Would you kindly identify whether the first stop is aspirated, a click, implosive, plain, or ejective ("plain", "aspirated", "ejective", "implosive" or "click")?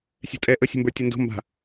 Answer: ejective